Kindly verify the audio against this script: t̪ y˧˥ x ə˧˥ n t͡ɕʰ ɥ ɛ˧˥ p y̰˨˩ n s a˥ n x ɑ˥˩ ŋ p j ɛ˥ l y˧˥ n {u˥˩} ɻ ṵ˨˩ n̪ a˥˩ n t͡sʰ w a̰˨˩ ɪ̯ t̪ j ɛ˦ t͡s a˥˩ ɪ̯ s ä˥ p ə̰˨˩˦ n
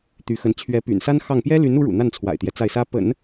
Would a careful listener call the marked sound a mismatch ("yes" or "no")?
yes